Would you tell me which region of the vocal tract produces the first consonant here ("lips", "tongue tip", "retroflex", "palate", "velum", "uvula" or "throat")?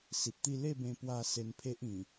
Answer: tongue tip